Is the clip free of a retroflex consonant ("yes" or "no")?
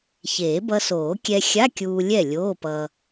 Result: yes